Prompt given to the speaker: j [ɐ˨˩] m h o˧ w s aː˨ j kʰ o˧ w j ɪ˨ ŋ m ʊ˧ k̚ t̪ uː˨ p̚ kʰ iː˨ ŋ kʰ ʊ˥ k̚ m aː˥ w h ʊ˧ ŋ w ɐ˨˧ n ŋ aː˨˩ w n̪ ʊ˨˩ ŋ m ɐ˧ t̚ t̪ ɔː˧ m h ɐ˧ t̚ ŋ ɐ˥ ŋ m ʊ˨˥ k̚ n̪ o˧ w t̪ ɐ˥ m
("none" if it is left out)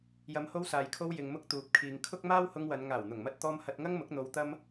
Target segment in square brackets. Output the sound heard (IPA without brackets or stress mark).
ɐ˨˧